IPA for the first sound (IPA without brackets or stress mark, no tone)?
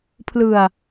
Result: pʰ